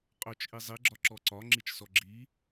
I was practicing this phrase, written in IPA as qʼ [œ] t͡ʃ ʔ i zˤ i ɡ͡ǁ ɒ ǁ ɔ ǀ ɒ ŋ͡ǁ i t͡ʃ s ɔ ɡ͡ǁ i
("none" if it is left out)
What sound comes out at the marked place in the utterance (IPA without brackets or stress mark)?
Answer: œ